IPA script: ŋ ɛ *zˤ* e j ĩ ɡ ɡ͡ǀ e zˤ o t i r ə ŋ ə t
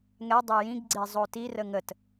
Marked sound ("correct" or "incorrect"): incorrect